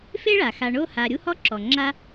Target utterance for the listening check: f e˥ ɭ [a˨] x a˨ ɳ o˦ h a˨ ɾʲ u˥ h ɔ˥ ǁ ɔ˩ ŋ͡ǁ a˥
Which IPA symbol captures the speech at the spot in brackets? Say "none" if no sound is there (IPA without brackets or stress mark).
a˩